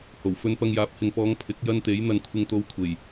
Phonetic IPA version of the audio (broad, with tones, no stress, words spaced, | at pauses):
ho˨˩w fɵ˧npɐ˧ŋjaː˨˥p̚ hɪ˨ŋpɔː˨˧ŋ pʰɪ˨˥k̚ jɐ˧n t̪e˨˥jn̪ɐ˧nkʷʰɪ˧ŋ t̪o˧w kʷʰe˨˩j